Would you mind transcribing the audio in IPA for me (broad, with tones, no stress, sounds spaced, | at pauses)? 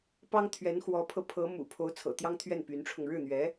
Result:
p ɑ˥ ŋ t̪ʰ ɥ ɛ˧˥ n x w ɔ˧˥ pʰ ɤ˧ pʰ ɤ˧˥ m ṵ˨˩ pʰ o˧˥ ʊ̯ t͡sʰ ɤ̰˨˩ t̪ j ɑ˥ ŋ t̪ʰ ɥ ɛ˥˩ n p y˧˥ n ʈ͡ʂʰ ʊ˧ ŋ ɻ ɻ̩˥˩ n̪ ɥ ɛ˧˥